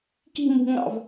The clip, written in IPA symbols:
ki̤mṳŋɑ̰v

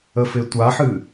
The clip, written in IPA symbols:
əfɪtʷaħɨ

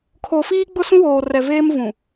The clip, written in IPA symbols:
kʰo˨ fiː˦ɡ͡bʊ˦sũ˦woː˨ rɛ˨veː˦mvũ˨

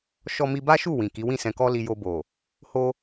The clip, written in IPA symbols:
ʃɔ˧mi˧ba˦ʃu˦˨ wĩ˨ki˨˦ wĩ˦˨sɛ̃˧kɔ˦li˧ jo˧bo˨ | ho˧

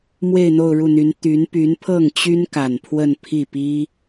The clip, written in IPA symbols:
mwe˥˧ɪ̯n̪o˥˧ʊ̯ɻu˥˩n̪y˧˥n t̪y˧˥n py˧˥npʰɤ˥˩ŋt͡ɕy˥nka˨˩n pʰwə˥˧npʰi˥˩ pi˥

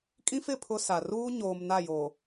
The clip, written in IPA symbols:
kʼĩ˦fɪ˦˨ pʰʊ˦sa˨ ruː˦ɲoː˨m na˦˨jo˨

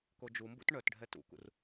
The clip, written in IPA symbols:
kod͡ʒumbṵt ɳœtɖʱɛ tṵkṵr

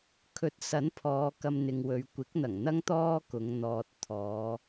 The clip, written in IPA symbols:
kʰɵ˧t̚ sɐ˨˥npʰɔː˨˧ kɐ˧mn̪ɪ˨ŋwɵ˨˧ɥ kʷɪ˨˥k̚n̪ɐ˨˩ŋn̪ɐ˥ŋ t̪ɔː˥kʊ˨˧ŋ n̪ɔː˨t̚ t̪ʰɔː˨˧

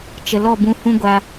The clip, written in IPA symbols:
t͡ʃə˨lɔ˦˨bũ˧ hũ˦ɡʷa˧

